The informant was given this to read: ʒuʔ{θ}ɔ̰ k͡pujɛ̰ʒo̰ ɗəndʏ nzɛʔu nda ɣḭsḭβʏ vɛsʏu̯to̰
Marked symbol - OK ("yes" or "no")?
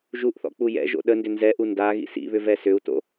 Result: yes